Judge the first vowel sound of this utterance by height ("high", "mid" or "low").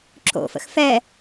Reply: mid